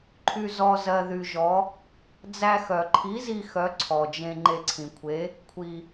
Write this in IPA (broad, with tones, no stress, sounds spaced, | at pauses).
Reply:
ǃʰ y˧ z ɔ˧ z ɜ˧ ð y˧ ʒ ɔ˨˥ | d͡z æ˧ x œ˩ ǃʰ i˨˥ z i˧ x œ˨˥ ǀʰ ɔ˩ d͡ʒ ẽ˧ ŋ͡ǃ e˧ ǀʰ ĩ˩ kʷʰ e˨˥ | kʷʰ i˩